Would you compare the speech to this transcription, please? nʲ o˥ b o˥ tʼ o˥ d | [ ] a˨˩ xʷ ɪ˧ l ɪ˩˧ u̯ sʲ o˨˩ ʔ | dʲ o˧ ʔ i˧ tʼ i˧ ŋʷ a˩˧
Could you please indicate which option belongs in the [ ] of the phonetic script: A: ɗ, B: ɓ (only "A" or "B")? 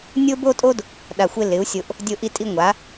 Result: A